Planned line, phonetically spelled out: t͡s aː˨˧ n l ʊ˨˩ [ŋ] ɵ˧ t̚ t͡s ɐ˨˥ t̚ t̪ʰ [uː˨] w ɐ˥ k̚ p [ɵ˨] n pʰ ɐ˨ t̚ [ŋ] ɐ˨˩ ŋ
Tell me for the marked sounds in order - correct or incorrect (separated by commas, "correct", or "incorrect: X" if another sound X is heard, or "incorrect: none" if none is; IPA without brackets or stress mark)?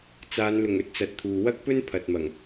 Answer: correct, correct, incorrect: ɵ˥, incorrect: m